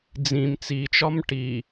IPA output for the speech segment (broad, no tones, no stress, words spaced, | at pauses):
d͡zĩm t͡sit͡ʃɒm ʈi